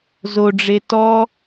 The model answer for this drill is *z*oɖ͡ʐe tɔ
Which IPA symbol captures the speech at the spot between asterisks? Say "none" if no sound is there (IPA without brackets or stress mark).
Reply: z